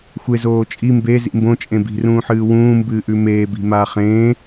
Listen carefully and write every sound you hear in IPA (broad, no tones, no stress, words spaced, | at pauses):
xʷezoː t͡ʃʼi mbezḭ mbõt͡ʃʼẽ bi̤rũːħɨː wũːmbɨːʔʉ meːbi̤maː χẽː